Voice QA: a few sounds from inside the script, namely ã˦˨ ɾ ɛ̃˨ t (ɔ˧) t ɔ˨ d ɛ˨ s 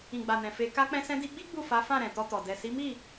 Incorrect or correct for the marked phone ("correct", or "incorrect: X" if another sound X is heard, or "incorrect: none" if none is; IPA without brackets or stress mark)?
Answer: correct